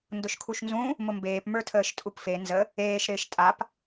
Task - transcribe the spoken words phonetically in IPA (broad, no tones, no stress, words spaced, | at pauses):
ndʊʃkʰuʃnzũ | mʊmbeːp mə˞tʰəːʃtʼupfe nzə | eːʃ ɾɪːʃtʼap